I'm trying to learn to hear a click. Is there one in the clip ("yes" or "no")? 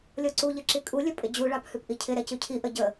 yes